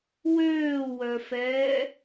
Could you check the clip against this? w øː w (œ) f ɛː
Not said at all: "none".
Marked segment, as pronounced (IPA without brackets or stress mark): œ